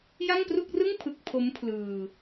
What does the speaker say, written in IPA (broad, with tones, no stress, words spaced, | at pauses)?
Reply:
ja˥˩ŋpru˥˩k̚rɯ˥˩ŋ pʰɯ˥˩k̚ pʰo˦˥m pʰlɯː˧